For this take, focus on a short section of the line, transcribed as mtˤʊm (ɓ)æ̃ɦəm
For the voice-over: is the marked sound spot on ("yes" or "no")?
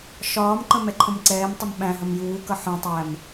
yes